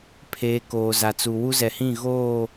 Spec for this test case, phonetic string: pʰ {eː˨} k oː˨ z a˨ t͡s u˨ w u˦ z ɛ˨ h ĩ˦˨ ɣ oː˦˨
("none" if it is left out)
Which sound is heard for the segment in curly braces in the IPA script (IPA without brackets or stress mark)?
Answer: eː˨